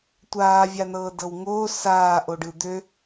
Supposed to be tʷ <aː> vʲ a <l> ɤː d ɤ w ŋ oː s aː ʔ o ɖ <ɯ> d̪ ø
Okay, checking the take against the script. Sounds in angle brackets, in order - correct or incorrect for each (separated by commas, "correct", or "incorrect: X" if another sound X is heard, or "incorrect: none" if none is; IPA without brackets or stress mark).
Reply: correct, incorrect: n, correct